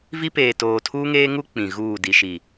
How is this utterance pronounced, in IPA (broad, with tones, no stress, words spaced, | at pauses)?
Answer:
vi˦peː˨ toː˨tʰuː˦ŋeː˦ŋu˦ k͡pĩ˨ɣuː˦˨ di˨ʃi˨